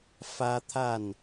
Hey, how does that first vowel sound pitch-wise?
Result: high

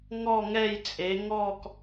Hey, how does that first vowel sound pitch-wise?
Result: falling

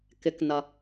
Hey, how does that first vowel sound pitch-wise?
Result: rising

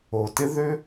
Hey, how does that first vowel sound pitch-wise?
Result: low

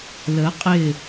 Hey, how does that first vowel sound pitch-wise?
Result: rising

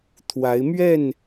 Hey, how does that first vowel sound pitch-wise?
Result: rising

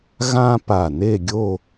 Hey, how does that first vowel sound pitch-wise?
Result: high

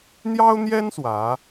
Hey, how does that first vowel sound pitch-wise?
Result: high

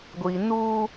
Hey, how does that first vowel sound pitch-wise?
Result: low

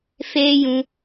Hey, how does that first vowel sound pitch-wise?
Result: high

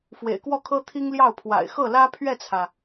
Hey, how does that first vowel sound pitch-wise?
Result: low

